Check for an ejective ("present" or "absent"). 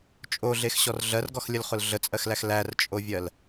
present